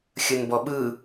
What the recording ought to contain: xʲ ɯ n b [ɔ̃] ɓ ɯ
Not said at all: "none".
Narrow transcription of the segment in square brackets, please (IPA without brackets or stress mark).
ɔ